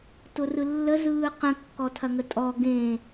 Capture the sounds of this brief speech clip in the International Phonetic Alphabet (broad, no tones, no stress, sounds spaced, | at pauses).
t ʊ r ɯ lː ə z ɯː q ə̃ kː ɔ tʰ ɐ ŋ ə tʼ ɔ ɡ ẽ